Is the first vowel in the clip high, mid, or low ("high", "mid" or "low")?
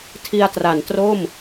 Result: high